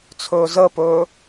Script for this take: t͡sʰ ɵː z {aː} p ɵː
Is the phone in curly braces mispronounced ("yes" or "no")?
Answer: yes